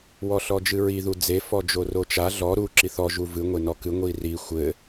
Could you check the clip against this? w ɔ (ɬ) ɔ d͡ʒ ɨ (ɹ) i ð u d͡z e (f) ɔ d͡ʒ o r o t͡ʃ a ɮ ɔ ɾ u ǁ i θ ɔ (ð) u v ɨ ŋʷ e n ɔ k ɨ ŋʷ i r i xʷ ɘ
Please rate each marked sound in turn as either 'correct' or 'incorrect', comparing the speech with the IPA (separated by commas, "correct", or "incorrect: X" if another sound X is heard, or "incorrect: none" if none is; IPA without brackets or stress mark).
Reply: correct, correct, correct, incorrect: ʒ